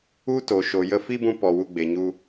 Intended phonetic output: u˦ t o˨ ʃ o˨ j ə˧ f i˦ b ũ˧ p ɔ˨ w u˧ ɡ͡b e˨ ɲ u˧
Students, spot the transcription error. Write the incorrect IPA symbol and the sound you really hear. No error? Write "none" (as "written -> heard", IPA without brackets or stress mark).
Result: none